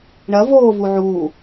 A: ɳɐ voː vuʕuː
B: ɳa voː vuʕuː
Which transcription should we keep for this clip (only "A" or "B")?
A